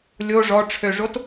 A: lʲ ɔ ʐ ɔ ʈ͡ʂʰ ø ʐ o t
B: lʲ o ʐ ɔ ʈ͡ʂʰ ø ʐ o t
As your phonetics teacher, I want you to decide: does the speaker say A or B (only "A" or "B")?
B